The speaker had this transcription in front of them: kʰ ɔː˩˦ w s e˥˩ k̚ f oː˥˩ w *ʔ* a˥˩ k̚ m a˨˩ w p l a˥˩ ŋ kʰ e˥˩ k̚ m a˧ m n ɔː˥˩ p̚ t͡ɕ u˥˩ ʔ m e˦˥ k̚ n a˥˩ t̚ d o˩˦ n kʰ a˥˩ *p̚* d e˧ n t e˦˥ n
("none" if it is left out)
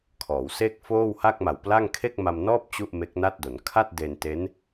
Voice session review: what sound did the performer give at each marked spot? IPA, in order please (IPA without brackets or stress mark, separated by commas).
h, t̚